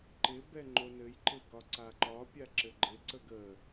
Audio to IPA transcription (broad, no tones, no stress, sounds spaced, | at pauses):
ǃ ɪ b ɛ ŋ͡ǃ o n ɘ j ǃ ɪ ɡ ɒ ǀ a ǃ ɒ pʲ a ǁ ɘ ɡ͡ǃ ɪ ǀ ə ɡ ə